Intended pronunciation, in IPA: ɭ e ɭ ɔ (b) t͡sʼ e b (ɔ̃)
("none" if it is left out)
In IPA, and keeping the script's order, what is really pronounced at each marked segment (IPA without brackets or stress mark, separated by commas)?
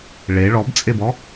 b, ɔ